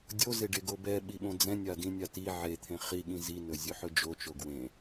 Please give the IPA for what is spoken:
dʲ o z e ɖ e ɡ o b ɛ ɓ i ɓ õ d͡z ɛ̃ nʲ a d ĩ nʲ a t i ʕ e t̪ʰ ẽ χ i ɠ ĩ z i n ɵ zʲ ɵ ħ ɵ d͡ʒ o t͡ʃ o ɡ w ẽ

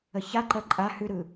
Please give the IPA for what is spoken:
ə ç a ǃ ɜ ǃʼ a h ʉ ɾ ɯ

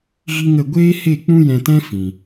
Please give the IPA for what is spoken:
ɣ i˦ ŋ ə˦˨ ɡʷ eː˦ h e˦˨ k͡p ũ˦ j ɛ̃˧ t ɛ̃˦ f ĩ˨

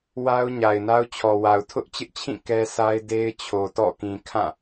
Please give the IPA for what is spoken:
w a˦ ʊ̯ ɲ a˨ ɪ̯ n a˦ ʊ̯ t͡ɕʰ ɔ˨ w a˨ ʊ̯ tʰ ʊ˦ ʔ t͡ɕ ɪ˦ ʔ t͡ɕʰ ĩ˦˨ k ɛ˦ s a˦ ɪ̯ d e˦ ɪ̯ t͡ɕʰ o˨ t ɔ̰˦˨ k ĩ˨ kʰ ã˦˨

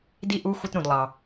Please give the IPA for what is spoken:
d i˥ ʔ u˧˥˧ xʷ ə˧˥˧ t ɾ ũ˨ d lˠ ɑ˨

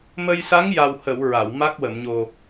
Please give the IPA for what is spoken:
m ə˧ j s a˧˥ ŋ j a˨˩ w h ə˨˩˨ w ɹ a˨˩˨ w m a˦˥ k̚ w ə˨˩˨ m ɲ o˨˩

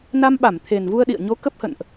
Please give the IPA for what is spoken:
n a˧ m ɓ a˧˩ m t̪ʰ e˨˩ n v u˧ ə̯ ɗ ḭ˧˨ ə̯ ɲ o˨˦ k ə˦˥ p̚ h ə̰˧˨ n ʔ

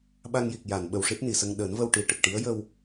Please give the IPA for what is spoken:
ɓ a˧ ŋ j i˨˩ k̚ j a˨˩˨ n ɓ ə˨˩ w ʂ i˦˥ t̚ n i˨˩˨ s ə˧ ŋ ɗ əː˨˩˦ n v ə˧ w ʈ i˨˩ ʈ ə˨˩ k̚ ʈ i˧˥ ə̯ j ə˧ w

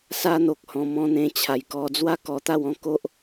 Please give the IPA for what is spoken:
s a˦ n̪ o˨ k̚ h ɔ̃˨˩ m ɔ̃˧ n̪ ẽ˧ t͡ɕʰ a˨˩ j k ɔ˧ d͡z w a˦ k ɔ˧ t̪ a˥˧ w ɔ̃˥˧ k o˦ ʔ

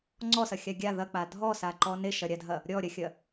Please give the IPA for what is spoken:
ŋ͡ǀ ɔ s ɐ xʲ a ɡʲ a ð ɐ k͡p a dʱ ɔ s a ǃ ɔ n e ʃ ɐ ɾʲ a dʱ ɐ | ɾʲ ɔ ɾʲ ɐ xʲ ɐ

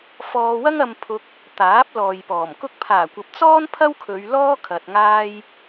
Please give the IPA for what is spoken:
f ɔː˧ w ɐ˥ ŋ ɐ˧ m pʰ ʊ˧ k̚ | t̪ aː˨˥ p̚ l ɔː˨ j p ɔː˨˩ m k ʊ˥ k̚ pʰ aː˨˩ kʷ ɐ˨ p̚ t͡s ɔː˥ n pʰ ɐ˥ w kʰ ɵ˨˧ ɥ l ɔː˥ kʰ ɐ˧ t̚ ŋ aː˥ j

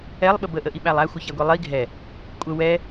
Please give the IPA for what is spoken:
ɛ lˠ ɓ ə b ə ʔ ə ʔ i ɓ æ lˠ æ xʷ ə ç æ ɡʷ i lˠ i ɡʱ ɛ | kʷʼ ə w ɛ

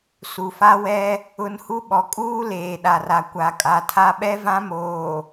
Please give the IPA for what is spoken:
s u˨ f a˦ w ɛ˦ | ʊ˦ n h u˦ ɓ ɔ˨ kʼ uː˦ l eː˨ ɗ a˨ r a˨ kʷ a˨ kʼ a˨ tʰ a˦ ɓ ɛ˦ v ã˦ m oː˨

